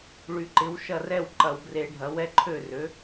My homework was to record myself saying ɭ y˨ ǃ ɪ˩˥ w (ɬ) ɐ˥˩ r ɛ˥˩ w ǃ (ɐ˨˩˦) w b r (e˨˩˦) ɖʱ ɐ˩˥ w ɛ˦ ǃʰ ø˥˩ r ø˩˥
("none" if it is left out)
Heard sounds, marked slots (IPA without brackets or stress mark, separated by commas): ʃ, ɐ˨˩˦, e˨˩˦